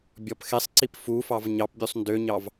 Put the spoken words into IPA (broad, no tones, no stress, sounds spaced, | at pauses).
bʲ ɔ p x e sˤ ǀ i p f u f ɑ v ɲ ɑ p bʲ u sˤ n d ø ɲ ɑ v